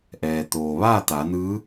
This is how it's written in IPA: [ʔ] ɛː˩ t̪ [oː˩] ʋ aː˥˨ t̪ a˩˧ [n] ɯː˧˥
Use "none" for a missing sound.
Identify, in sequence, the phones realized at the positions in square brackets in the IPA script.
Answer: ʔ, oː˩, n

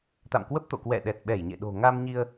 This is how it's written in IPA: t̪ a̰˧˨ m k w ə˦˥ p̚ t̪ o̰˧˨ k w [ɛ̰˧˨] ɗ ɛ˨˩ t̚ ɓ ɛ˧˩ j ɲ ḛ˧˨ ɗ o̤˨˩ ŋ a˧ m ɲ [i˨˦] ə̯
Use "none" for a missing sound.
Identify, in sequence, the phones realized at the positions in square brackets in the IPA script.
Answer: ɛ̰˧˨, i˧

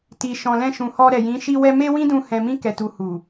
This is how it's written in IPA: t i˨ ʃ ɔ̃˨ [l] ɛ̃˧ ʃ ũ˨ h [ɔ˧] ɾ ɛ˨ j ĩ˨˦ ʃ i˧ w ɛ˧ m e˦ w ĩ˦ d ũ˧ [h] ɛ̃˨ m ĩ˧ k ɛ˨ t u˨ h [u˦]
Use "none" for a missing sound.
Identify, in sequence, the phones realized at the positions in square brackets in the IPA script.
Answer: l, ɔ˧, h, u˨

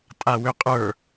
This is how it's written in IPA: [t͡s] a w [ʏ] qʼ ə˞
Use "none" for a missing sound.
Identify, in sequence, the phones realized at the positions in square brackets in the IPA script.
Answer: tʼ, ʏ

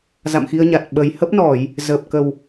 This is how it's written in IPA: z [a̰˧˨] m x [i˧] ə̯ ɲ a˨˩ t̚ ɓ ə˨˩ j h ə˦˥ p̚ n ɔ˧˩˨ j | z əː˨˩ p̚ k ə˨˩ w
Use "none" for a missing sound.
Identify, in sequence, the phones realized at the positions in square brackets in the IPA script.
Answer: a̰˧˨, i˧

